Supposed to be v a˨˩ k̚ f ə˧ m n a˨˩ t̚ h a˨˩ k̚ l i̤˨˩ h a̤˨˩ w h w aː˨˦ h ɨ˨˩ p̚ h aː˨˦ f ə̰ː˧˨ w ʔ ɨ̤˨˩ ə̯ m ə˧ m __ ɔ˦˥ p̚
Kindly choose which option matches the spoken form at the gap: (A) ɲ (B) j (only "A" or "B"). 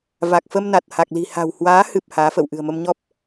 A